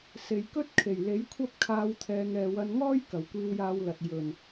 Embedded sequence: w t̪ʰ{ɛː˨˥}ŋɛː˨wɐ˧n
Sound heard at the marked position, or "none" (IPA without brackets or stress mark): ɛː˨